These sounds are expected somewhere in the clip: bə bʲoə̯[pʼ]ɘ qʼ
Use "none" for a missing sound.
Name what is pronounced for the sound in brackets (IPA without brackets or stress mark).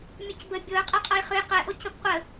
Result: qʼ